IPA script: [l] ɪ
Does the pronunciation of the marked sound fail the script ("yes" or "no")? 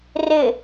yes